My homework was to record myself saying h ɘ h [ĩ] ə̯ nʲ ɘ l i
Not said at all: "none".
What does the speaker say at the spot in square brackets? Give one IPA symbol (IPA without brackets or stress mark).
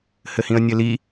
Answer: ĩ